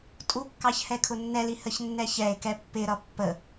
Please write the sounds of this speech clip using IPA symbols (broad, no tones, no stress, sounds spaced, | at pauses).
tʼ u kː ɑ ç h ɛ kʰ ʊ nː ɛ l i h ə ç nː ɛ ç ɛ e̯ k ɛ pː ɪ ɾ ʌ pː ə